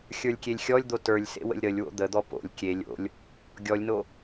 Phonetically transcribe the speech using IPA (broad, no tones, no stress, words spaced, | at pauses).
xʲə˞lʲkʲelʲxʲɔlʲd̪o tə˞lʲsḛ wə̰lʲɾəlʲwo̰ d̪əd̪ɔ po̰lʲ kʲe lʲo̰lʲ | ɡʲɔlʲno